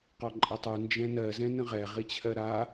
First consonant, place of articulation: uvular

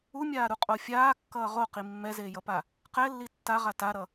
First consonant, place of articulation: labial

